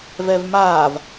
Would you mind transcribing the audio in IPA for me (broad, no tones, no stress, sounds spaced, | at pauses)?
v ɛ v m aː v